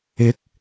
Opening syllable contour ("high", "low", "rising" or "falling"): rising